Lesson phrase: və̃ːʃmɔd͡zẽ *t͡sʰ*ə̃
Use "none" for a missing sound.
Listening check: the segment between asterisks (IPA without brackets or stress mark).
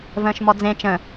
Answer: t͡ʃ